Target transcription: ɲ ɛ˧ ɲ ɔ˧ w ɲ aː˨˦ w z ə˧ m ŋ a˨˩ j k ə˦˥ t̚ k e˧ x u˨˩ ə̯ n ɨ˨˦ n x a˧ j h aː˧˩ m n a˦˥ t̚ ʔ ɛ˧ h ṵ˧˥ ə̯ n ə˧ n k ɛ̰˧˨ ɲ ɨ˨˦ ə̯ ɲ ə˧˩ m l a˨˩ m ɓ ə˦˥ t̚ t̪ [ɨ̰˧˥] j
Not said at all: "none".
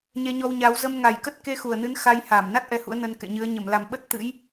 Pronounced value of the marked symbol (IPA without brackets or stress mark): ɨ̰˧˥